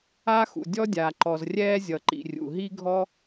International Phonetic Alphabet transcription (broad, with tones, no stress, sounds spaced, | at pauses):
aː˥ x ṵ˩ dʲ ɔ˥ dʲ aː˩ ǃ ɔ˩ z rʲ ɛː˥ zʲ ʌ˩ ǃ ḭ˩ rʲ ṵ˩ ɦ i˥ ɡʱ ɔ˥